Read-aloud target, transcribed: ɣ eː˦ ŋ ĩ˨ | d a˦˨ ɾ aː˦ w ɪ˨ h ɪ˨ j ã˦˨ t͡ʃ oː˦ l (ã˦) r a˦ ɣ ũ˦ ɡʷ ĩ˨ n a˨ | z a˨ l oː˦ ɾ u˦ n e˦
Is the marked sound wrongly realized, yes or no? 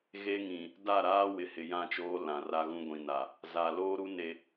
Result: yes